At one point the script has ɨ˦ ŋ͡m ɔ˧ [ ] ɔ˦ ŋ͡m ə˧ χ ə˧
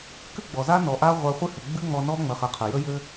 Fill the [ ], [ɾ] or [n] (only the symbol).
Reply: n